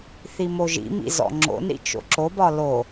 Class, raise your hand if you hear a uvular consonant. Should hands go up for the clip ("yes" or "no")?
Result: no